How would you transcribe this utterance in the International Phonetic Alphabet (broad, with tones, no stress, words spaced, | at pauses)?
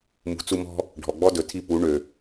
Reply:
mṳ˨t͡su˧mɔ̤˦ | ɖʱɔ˨ɡ͡bɔ˦dɵ˨tʰi˦˨ pu˨˦ɳø˨